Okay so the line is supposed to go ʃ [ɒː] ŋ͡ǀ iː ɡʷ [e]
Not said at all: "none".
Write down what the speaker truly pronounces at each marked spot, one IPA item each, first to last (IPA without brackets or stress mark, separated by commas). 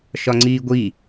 ɒ, i